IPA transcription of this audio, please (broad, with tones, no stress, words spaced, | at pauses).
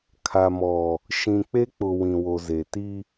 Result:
kʰa˨mɔ˨ | ʃĩ˨k͡pe˦k͡pʊ˨ wĩ˨wo˨ze˨ ti˦